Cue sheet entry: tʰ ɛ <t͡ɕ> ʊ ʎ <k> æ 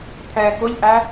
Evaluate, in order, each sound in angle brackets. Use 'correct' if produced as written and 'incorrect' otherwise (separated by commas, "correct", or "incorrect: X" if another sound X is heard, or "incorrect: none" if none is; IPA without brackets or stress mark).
incorrect: k, incorrect: ʔ